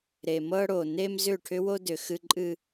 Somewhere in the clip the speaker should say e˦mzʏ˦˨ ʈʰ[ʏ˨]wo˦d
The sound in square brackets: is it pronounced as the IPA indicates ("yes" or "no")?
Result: no